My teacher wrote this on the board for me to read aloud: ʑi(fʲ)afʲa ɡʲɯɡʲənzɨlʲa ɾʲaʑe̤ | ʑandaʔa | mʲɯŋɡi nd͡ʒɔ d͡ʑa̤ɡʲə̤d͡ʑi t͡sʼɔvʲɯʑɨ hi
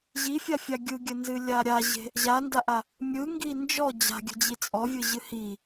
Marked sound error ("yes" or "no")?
no